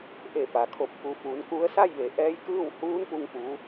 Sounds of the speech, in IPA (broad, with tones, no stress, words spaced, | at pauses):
ʔe˧˩pa˩kʰo˧˩p̚ ku˩˧fuː˩˧n ku˧˥ə̯ sa˥˨jʋe˩˧ ʔɛː˧˥jkɯː˥˨w huː˧˥npu˧ŋ pu˧˥